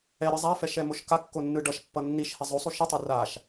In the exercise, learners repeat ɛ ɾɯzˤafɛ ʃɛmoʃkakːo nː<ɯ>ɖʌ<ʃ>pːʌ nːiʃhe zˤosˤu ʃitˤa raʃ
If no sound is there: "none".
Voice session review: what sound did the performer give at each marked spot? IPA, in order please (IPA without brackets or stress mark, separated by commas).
ɯ, ʃ